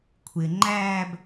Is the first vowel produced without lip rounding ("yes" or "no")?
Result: yes